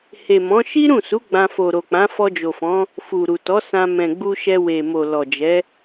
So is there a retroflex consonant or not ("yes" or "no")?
no